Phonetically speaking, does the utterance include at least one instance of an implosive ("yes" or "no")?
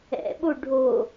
yes